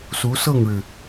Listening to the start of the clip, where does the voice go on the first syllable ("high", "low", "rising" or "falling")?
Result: rising